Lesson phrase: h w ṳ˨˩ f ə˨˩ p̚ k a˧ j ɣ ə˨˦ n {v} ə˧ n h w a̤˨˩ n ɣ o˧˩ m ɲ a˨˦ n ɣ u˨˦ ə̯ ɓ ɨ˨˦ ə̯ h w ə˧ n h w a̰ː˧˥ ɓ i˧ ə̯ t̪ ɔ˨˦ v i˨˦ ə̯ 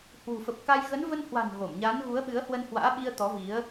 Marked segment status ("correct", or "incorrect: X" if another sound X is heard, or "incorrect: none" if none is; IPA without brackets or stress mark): correct